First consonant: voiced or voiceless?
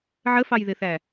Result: voiced